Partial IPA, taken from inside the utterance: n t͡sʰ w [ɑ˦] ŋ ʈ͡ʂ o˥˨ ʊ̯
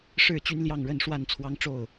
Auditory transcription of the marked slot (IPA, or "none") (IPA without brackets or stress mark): ɑ˦